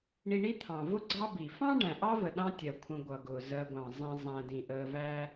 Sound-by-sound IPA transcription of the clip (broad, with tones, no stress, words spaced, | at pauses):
ɳi˨ɳi˦t̪ʰɑ̃˩ vʊ˥ɡ͡ǀɑ˦ bi˩fɑ̃˥ ɖæ̃˩ʔɑ˥və˩ ɗɑ̃˦tʲɜ˩kʷʰə̃˨ ɡʷʌ˩ɡʊː˩zɜ˨ɡʷɑ̃˩ zˤĩ˨ zˤæ̃˨ dĩ˩ʔəː˨væ˦